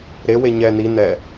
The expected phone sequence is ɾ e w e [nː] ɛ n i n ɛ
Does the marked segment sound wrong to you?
yes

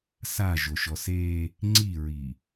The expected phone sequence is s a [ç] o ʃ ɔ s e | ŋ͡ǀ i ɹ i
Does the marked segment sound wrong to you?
yes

